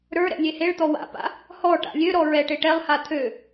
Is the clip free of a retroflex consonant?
no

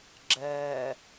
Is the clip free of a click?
no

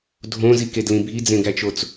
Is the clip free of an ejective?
yes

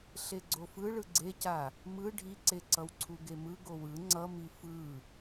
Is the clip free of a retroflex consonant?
no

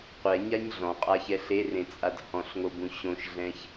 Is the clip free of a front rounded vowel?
yes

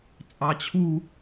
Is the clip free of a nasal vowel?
yes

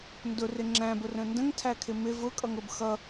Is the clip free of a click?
no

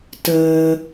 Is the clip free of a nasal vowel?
yes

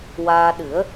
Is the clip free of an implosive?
no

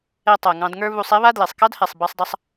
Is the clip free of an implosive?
yes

